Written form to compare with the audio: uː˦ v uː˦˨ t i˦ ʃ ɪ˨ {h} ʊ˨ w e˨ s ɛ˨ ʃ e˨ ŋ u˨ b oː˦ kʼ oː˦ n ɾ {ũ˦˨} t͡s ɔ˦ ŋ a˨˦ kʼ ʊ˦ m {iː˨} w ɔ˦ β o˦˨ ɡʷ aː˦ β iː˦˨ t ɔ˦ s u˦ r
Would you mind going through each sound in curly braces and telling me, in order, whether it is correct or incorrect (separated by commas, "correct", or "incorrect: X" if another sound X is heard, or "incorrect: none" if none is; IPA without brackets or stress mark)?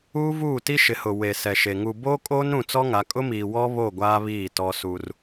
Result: correct, correct, correct